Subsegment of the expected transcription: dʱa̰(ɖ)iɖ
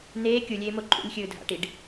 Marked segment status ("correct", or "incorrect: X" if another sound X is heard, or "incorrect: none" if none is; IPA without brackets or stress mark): incorrect: ʈ